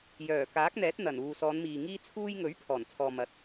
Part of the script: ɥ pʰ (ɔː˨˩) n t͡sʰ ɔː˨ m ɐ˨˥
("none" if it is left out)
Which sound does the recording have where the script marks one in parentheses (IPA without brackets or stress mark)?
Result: ɔː˨˩